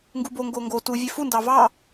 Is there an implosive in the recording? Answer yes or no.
no